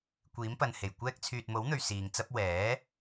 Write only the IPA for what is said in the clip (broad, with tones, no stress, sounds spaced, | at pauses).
kʷ iː˨˥ m p ɐ˨ n h e˨˩ j kʷ ɛː˧ k̚ t͡sʰ yː˨ t̚ m o˨˥ w n̪ ɵ˨ ɥ s iː˨ ŋ t͡s ɐ˥ p̚ w ɛː˨˥